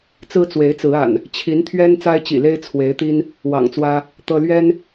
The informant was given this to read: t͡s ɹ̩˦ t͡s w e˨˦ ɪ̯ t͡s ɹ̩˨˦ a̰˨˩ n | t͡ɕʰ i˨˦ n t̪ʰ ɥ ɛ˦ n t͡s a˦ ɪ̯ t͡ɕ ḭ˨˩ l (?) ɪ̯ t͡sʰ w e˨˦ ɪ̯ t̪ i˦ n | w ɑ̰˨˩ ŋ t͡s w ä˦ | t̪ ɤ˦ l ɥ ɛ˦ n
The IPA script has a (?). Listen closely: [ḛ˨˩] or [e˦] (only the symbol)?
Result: e˦